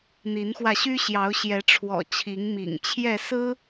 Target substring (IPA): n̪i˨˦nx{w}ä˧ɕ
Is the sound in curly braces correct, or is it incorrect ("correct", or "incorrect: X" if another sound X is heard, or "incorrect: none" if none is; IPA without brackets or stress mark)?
correct